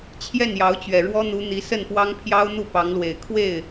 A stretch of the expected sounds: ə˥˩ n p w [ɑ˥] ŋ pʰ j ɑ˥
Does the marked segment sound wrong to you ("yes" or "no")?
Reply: no